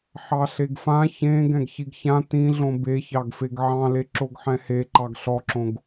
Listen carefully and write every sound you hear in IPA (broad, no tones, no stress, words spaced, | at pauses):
ħɑɬeɡfã çẽ ɡɛ̃ɡçiɡçã tĩɮõ beçɑɡfeɡ ʕɑ̃le ǁoɡħɛ̃he ǃɑɡɬɔǁõɡ